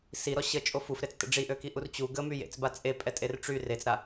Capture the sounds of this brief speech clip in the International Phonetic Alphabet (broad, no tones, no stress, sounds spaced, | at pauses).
s i ɾ ɔ ɕ ə t͡ʃʼ o f u f ɾ e t͡s t ə̰ ɖ͡ʐ i ʔ ø k i ʔ u r t͡ɕ u ɡ ə m y j ḛ t͡s b a t͡sʼ e pʼ ɛ tʼ e r ʈ͡ʂ y r e t͡s ɾ a